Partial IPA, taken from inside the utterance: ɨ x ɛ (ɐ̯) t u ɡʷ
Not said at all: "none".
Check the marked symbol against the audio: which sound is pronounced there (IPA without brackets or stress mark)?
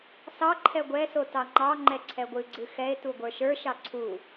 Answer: e̯